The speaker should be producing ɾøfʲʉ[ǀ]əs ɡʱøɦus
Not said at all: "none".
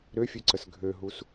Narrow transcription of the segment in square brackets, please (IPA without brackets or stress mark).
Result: ǀ